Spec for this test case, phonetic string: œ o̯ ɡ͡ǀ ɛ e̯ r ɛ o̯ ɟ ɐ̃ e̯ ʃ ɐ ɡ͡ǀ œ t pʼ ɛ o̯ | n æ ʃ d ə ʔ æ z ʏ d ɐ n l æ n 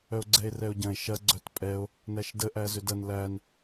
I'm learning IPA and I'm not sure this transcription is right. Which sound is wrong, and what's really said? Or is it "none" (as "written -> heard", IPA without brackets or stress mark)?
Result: none